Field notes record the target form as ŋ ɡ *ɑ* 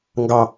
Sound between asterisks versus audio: correct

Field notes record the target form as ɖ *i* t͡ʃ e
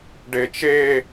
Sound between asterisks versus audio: incorrect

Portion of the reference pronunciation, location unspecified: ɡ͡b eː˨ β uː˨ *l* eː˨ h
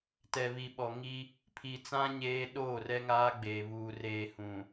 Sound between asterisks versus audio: incorrect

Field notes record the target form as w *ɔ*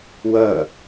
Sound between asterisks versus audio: incorrect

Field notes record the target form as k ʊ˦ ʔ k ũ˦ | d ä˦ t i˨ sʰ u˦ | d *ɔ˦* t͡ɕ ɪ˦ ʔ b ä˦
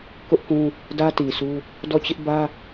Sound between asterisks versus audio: incorrect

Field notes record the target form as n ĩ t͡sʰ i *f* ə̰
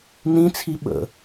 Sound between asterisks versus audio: incorrect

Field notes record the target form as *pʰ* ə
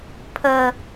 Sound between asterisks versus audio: correct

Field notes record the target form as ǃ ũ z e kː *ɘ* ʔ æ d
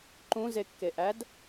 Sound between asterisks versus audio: incorrect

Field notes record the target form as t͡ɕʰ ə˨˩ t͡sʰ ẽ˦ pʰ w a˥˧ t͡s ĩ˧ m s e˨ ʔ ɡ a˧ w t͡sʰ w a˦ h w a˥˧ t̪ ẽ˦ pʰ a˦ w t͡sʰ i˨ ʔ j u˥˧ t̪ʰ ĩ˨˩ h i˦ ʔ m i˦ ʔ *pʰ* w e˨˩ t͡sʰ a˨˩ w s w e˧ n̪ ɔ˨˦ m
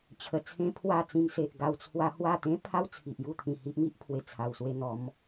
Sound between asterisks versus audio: correct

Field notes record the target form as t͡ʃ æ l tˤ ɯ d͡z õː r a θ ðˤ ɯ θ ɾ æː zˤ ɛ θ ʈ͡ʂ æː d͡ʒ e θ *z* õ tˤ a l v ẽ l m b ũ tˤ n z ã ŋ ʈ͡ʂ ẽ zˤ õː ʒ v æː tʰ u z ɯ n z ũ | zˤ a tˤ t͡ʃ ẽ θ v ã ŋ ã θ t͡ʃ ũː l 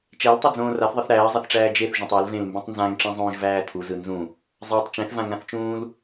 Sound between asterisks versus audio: incorrect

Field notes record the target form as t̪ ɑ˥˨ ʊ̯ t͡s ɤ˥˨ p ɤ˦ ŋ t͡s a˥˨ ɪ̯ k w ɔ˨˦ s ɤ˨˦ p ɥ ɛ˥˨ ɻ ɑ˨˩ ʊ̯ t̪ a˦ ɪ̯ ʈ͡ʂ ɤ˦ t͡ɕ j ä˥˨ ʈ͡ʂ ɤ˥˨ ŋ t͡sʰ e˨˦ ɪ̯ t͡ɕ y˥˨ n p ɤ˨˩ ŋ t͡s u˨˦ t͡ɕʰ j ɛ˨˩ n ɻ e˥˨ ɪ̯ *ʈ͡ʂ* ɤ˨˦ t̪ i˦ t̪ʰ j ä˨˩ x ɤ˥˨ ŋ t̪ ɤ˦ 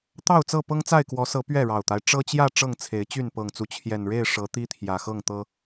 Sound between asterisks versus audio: incorrect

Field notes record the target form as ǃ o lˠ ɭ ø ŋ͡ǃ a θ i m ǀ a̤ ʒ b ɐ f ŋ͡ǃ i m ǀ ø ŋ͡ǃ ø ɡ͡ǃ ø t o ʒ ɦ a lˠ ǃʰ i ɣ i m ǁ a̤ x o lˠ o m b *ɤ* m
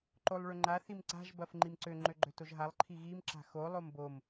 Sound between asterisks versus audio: incorrect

